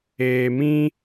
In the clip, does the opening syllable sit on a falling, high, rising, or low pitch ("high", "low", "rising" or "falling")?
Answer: low